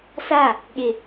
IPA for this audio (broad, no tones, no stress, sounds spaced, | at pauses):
s a | ɠ ɪ